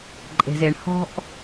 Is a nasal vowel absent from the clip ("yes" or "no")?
yes